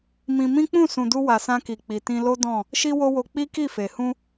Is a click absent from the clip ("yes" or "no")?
yes